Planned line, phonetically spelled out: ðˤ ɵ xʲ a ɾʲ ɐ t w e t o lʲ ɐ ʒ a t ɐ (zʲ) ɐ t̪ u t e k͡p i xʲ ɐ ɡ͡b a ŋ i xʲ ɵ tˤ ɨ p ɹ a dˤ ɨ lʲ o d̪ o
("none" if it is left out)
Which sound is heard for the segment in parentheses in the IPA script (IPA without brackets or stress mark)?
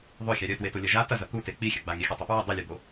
z